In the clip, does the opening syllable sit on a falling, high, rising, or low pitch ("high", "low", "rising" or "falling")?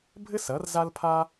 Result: high